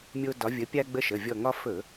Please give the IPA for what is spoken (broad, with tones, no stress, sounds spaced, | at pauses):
mʲ o˦ d ɒ˨˥ vʲ ə˨˥ pʲ a˦ ɡ͡b ə˦ ʃ ə˩˧˩ vʲ ɔ˧˩ ŋ ɒ˦ f ɵ˧˩˧